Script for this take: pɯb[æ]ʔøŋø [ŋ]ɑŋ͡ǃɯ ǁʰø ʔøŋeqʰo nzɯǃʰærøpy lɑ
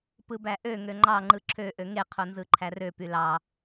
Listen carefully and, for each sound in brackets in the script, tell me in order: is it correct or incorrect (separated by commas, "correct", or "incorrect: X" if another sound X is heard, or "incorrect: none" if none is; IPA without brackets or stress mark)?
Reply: correct, incorrect: ŋ͡ǃ